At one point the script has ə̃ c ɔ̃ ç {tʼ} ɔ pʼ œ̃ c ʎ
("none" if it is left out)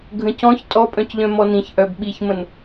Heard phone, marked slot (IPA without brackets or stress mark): tʼ